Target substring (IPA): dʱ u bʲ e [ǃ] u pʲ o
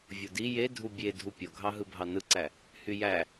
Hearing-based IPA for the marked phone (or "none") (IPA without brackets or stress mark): dʱ